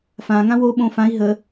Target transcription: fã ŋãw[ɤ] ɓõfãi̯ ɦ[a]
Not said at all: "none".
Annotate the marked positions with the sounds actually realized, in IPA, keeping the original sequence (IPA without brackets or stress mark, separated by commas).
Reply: o, ə